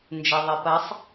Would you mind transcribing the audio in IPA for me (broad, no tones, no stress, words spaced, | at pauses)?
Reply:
nd͡ʒeðˤepɐsˤ